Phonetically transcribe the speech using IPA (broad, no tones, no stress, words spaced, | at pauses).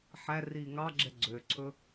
ħæ riːŋɑɡ͡ǁɛ ɡ͡ǀøǀʰɵ